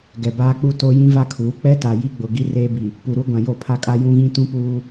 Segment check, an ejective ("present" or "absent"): present